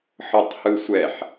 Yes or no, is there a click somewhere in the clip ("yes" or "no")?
no